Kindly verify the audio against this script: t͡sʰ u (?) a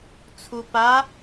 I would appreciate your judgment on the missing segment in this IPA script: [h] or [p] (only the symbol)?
p